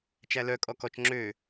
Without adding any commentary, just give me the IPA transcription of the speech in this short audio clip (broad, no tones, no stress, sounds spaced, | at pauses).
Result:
t͡ʃ æ l œ kʼ ɔ k ɔ t͡ʃ ŋ͡ǁ ø